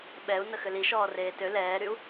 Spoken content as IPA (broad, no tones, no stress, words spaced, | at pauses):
ɓɛu̯ nəxʏliʃɔː reːtø lɛːɾyu̯